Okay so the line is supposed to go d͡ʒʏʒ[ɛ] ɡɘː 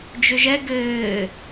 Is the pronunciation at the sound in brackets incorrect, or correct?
correct